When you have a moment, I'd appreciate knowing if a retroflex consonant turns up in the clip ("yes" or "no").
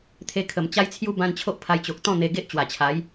no